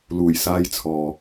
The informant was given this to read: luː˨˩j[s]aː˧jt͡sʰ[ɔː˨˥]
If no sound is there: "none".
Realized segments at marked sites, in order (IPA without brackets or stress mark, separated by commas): s, ɔː˨